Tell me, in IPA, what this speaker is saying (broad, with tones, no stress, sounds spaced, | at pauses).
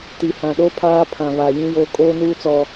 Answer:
t i˨ h ã˨ ɗ o˦ pʰ aː˦ pʰ ã˨ β a˨ j ĩ˦ j oː˦ kʼ oː˦ n uː˦ t͡s ɔ˨